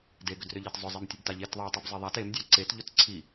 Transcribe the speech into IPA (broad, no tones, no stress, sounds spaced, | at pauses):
d e ɡ ʏ d r ʏ ʎ e t zˤ ʊ zˤ e m tʲ ʊ b t a ʎ e t ðˤ e tˤ i b zˤ e ðˤ a t e m dʲ a ǀ e t ʎ ʊ t ǀʰ i